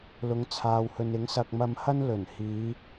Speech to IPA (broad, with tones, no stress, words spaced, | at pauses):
lʊ˨˧ŋt͡sʰaː˨whɵ˨nɪ˨˥ŋ sɐ˧k̚mɐ˧mhɐ˥n lɵ˨˩nhiː˨˧